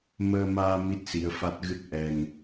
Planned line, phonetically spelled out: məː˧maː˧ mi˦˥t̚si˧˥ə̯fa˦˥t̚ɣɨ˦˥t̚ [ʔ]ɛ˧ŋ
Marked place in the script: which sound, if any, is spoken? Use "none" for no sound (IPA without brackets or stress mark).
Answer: ʔ